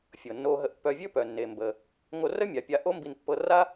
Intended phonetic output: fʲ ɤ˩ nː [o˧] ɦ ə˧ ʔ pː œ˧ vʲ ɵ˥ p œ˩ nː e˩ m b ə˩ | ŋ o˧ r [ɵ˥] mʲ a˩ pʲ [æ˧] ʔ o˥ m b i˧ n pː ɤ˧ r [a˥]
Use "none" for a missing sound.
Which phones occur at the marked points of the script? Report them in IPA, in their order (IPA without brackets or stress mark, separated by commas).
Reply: o˧, ə˥, a˧, a˥